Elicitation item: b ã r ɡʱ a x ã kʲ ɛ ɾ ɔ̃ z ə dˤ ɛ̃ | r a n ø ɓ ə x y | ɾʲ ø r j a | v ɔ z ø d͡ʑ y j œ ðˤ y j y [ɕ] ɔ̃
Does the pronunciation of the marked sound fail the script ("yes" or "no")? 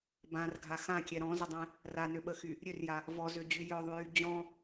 yes